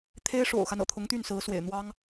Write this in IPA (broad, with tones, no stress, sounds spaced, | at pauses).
t̪ʰ e˥ ɪ̯ ʂ o̰˨˩ ʊ̯ x a˦ n ɤ̰˨˩ t̪ʰ ʊ˧˥ ŋ t̪ y˥˩ n s ɹ̩˧˥ s w ḛ˨˩ ɪ̯ n̪ w ɑ˥ ŋ